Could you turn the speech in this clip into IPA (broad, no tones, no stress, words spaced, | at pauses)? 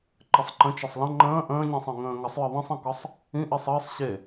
ǃɘsˤǃə̃ t͡ʃəsˤlə̃ ŋ͡ǃə̃ː ʔə̃ːɲĩsˤĩ ŋə̃ːŋəsˤjɘ ðˤĩsˤĩkɒsˤ | ĩʔisˤ ɘːsˤ ɕe